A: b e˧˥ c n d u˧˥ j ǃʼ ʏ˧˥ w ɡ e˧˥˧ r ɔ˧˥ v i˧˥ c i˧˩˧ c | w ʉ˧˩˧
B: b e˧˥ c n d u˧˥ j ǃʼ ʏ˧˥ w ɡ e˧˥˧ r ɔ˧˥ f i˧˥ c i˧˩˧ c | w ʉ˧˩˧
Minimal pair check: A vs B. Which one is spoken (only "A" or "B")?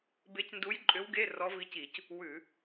A